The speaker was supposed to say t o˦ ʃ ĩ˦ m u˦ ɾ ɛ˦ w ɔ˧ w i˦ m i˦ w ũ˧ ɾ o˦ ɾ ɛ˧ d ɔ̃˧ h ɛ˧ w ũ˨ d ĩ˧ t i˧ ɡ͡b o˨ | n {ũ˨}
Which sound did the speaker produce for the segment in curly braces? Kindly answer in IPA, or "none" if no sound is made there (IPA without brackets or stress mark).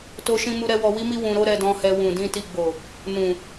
ũ˨